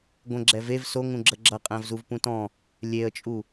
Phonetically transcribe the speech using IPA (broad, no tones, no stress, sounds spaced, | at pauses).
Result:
ɡʷ ə̃ ɡ͡ǁ ɛ v e v s o ŋ ũ ɡ͡ǁ ə ɡ͡ǁ ʌ qʼ æ̃ v z u v p ũ t ɔ̃ | lʲ e ə̯ t͡ʃʼ u